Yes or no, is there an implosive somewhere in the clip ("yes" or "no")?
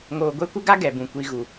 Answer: no